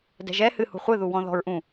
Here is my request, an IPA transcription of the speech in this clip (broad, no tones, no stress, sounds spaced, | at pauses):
d ɛ̤ ʒ ɛ h ɨ h ṳ χʷ ɨ ð u w ɔ̃ ð ɔ̤ ɹ ʔ ũ